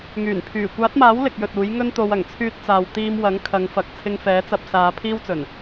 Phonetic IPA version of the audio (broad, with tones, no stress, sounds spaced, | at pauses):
ŋ yː˨˩ n pʰ yː˨˩ kʷ aː˨˥ t̚ m aː˨˥ w l ɪ˨ k̚ j ɵ˨ t̚ uː˨˥ j ŋ ɵ˥ n t̪ o˧ w ɐ˨˩ ŋ t͡sʰ yː˧ t̚ t͡s aː˨ w t̪ iː˧ m w ɐ˨˥ ŋ kʰ ɐ˨˧ ŋ f ɐ˨ k̚ t͡sʰ ɪ˧ ŋ f ɛː˨˥ t͡s ɐ˧ p̚ s aː˨˧ pʰ iː˥ w t͡s ɵ˨˩ n